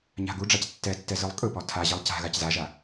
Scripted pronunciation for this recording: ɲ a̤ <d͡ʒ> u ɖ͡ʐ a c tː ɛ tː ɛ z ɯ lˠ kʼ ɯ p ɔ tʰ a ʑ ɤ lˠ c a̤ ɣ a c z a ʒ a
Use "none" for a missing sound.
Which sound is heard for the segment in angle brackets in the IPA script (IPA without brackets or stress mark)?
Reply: ɡ